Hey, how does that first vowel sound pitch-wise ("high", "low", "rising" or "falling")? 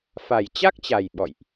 low